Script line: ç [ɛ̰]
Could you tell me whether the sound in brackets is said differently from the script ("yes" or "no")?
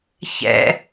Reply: no